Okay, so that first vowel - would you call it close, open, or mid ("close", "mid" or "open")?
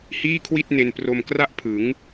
close